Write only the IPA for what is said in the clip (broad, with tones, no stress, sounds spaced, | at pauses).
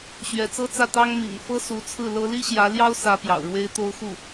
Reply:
ɕ ɥ ɛ˧˥ t͡s ɤ˥ t͡s ä˥˩ t̪ ɑ˥ ŋ m ḭ˨˩ ŋ f ɤ˥ s u˧˥ t͡sʰ ɹ̩˥˩ l ɤ˥ l i˥ ɕ j ä˧˥ l j ɑ˥ ʊ̯ s ä˧˥ p j ɑ̰˨˩ ʊ̯ ɻ w e˥ ɪ̯ t̪ o˥ ʊ̯ x u˥˩